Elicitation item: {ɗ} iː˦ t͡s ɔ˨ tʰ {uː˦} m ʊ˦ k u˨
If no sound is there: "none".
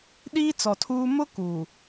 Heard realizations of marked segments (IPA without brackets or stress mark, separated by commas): ɗ, uː˦